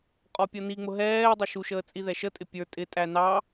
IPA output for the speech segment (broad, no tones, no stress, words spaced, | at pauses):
qʼɔpʲʌniŋ͡mʊ ɦɛːdˤə ʃuʃəː t͡sʼiðɛʃətʼɪ pʲə˞ tʼɪtʼæ nɑ